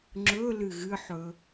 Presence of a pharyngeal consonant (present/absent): present